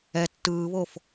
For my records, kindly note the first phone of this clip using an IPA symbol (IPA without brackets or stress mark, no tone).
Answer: ɛ